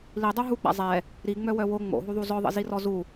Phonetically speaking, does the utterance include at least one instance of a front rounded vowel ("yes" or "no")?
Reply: yes